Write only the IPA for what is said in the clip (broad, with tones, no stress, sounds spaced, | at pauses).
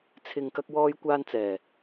t͡sʰ ɪ˨ ŋ k ɐ˧ k̚ w ɔː˧ j kʷ aː˧ n t͡s ɛː˨˩